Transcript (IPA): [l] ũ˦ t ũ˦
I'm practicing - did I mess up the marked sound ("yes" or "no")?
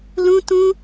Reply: no